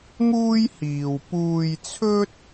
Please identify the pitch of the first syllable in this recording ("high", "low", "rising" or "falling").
high